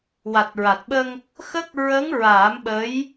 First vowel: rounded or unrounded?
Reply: unrounded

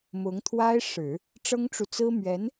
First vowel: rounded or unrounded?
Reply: rounded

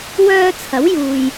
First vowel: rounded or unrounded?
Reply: rounded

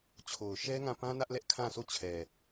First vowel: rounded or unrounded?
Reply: rounded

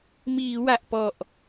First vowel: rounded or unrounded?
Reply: unrounded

